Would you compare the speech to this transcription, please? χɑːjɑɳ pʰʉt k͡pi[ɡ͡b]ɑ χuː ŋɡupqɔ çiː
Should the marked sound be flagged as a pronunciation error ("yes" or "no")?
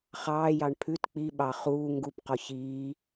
yes